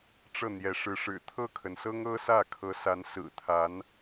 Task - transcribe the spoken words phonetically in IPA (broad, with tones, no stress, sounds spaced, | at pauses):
ʈ͡ʂ ɤ˥˩ n̪ j ɛ˧˥ ʂ ɻ̩˧˥ ʂ ɻ̩˨˩ t̪ʰ ɤ˥˩ kʰ ə˩ n s ɤ˥ ŋ ɤ˥ s ä˥˩ kʰ ɤ˧˥ s a˧˥ n s ɹ̩˨˩ t̪ʰ a˧˥ n